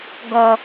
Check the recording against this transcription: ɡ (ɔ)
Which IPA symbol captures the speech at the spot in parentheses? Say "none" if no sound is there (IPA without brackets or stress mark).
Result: ɔ